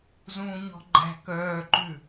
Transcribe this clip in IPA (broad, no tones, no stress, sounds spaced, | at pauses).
z ũː ɲ ɔ̤ ɡ͡ǃ æ̤ k œː ǃ ʉ